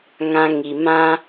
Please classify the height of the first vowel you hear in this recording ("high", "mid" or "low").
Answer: low